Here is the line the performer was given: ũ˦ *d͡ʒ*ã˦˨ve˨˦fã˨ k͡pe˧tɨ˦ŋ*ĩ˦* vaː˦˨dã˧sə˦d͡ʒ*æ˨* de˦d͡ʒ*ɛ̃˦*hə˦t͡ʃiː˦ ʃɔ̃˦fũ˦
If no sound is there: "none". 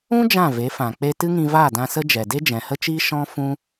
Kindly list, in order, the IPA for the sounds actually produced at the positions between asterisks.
d͡ʒ, ĩ˧, ɛ˨, ɛ̃˨

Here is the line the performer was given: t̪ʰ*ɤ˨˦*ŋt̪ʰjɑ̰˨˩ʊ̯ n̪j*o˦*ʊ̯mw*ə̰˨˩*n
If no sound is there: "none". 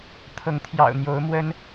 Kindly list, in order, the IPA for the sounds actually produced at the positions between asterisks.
ɤ˨˦, o˨˦, ə˦

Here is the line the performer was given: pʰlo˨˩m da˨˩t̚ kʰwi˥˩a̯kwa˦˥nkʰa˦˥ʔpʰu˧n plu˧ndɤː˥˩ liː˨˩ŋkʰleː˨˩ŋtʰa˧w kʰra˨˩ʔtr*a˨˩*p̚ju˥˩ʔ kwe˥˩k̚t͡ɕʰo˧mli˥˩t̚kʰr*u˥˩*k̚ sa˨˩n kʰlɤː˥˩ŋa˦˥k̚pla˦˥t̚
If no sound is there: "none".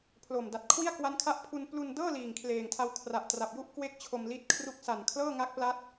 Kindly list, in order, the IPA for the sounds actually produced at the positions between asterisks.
a˨˩, u˥˩

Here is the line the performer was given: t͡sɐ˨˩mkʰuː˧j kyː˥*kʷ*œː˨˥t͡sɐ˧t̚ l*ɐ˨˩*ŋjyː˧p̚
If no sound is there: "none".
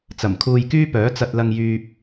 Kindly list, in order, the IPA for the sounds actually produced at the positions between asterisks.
p, ɐ˧

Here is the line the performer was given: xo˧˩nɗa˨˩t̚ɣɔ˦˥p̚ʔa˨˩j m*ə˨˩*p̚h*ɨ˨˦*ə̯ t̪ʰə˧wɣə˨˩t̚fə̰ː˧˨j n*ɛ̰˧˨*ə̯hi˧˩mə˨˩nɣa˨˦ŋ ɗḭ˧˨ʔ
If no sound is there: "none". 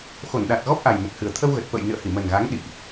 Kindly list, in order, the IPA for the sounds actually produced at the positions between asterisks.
ə˨˩, ɨ˨˩, ɨ̰˧˨

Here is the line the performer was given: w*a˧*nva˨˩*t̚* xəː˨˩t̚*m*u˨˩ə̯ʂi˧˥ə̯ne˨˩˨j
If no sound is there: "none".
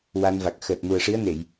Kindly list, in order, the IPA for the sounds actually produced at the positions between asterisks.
a˧, k̚, m

